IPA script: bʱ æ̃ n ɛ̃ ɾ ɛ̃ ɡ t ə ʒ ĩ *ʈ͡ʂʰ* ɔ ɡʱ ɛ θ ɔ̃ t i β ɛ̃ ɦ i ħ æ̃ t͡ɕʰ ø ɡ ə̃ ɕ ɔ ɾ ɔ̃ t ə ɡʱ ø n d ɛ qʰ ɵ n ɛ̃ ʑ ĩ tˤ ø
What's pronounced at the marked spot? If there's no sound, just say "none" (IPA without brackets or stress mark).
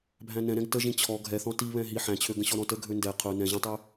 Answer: t͡ɕʰ